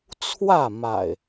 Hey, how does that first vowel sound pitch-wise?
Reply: falling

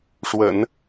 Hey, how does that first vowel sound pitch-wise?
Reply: low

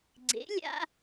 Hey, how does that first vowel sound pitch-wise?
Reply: rising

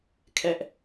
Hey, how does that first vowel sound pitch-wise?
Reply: high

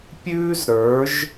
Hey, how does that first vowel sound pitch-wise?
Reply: high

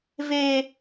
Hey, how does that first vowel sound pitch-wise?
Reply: high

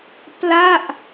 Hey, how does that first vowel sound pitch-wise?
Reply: falling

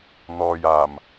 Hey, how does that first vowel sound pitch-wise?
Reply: low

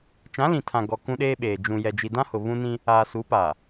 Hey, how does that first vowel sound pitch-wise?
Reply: rising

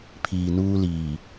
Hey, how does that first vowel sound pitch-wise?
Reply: low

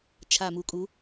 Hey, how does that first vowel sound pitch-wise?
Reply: low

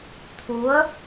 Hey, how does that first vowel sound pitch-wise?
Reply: rising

